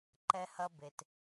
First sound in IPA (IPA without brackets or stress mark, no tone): ǃ